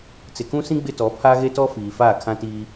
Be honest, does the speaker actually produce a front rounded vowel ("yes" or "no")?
no